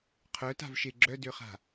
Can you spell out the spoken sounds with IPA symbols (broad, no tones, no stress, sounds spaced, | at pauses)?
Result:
qʰ œ t a̤ v ʃ e ɡ͡ǁ œ d ø χ a̤